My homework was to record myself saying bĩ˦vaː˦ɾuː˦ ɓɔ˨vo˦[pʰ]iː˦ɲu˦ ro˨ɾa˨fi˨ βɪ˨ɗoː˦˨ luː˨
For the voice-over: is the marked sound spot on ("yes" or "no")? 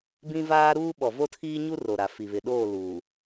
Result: no